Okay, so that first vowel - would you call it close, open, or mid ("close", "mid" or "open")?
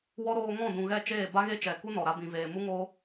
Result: mid